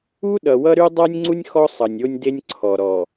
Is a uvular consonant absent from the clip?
yes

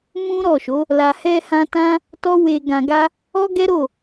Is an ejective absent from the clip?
yes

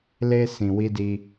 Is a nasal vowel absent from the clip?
no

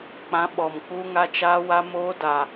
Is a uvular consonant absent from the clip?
yes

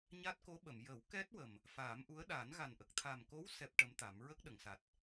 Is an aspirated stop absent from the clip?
no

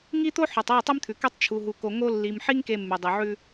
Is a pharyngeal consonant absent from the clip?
no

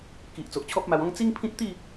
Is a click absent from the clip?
yes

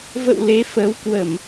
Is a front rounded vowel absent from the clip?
yes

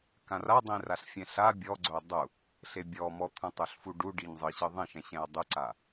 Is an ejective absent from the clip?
yes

